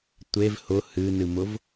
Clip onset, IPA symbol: tʷ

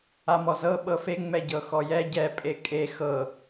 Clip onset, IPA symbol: a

